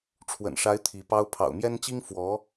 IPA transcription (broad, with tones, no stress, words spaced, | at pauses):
ʈ͡ʂʰwə̰˨˩nʂa˧˥ɪ̯ t̪ʰi˧˥pɑ˥ʊ̯ pʰɑ̰˨˩ʊ̯mjɛ˥nt͡ɕi˥ŋ fwɔ˧˥